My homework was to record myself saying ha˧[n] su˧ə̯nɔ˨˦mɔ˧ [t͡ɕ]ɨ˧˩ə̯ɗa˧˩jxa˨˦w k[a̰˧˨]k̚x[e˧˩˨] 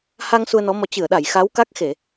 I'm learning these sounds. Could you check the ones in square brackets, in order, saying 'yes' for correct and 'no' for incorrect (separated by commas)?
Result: no, yes, no, yes